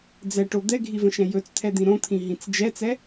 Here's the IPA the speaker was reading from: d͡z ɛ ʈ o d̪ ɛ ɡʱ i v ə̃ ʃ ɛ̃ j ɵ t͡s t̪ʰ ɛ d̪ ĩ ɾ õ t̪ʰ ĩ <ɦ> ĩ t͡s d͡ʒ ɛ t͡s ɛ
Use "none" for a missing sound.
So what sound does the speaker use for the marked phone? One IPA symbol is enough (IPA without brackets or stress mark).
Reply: ɦ